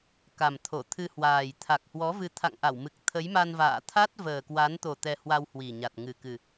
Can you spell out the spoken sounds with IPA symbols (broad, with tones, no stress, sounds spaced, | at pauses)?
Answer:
k a˨˩ m t̪ʰ o˧˩ t̪ʰ ɨ˧ h w aː˨˩ j t̪ʰ a˨˩ k̚ h w ɔ˨˦ v ɨ˨˦ t̪ʰ a̰˧˨ ŋ ʔ a˧˩ w m ɨ˨˩ k̚ t̪ʰ ə˨˦ j m a˧ n v a̰ː˧˨ t̪ʰ a˦˥ t̚ v əː˨˩ k w a˨˦ n t̪ o˨˩ t̪ ɛ˧ h w a˧ w h w i˨˩ ɲ a˨˩ t̚ ŋ ɨ˨˩ k ɨ˨˩